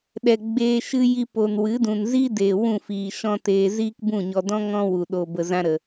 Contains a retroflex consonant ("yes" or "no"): no